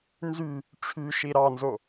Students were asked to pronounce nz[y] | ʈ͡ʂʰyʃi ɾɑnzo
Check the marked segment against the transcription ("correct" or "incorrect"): correct